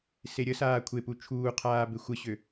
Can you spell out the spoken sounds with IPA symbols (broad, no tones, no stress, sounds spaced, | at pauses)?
s e ɾʲ ə s aː kʷʰ e p u t͡ʃʰ uː qʰ aː b e xʷ ə ɕ ø